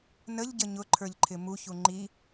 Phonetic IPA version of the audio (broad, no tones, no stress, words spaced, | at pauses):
nəʎɟə ɲʊǃʰə˞ʎǃʰɪ muçu ŋ͡ǃi